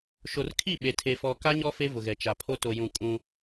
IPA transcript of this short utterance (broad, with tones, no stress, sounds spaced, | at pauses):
ʃ o˨ r kʰ i˦˨ ɓ e˨ tʰ e˨ f ɔ˨ k a˦ ɲ ɔ˦ f e˦ v ʊ˨ ɣ ɛ˨ t͡ʃ a˨ pʰ o˦ t o˨ j ũ˨ kʼ ũ˦